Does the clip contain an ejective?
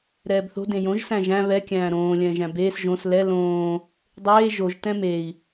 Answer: no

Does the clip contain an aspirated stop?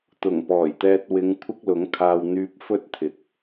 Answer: yes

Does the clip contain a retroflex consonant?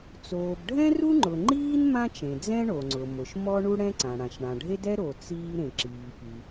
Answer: yes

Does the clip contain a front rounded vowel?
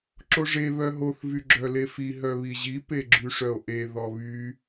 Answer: yes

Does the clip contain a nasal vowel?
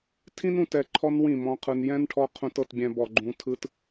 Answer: yes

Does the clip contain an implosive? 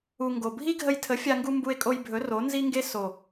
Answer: no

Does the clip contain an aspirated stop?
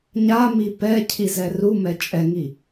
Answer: yes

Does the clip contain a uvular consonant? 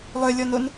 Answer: no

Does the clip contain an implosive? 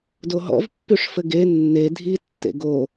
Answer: no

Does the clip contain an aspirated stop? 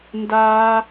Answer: no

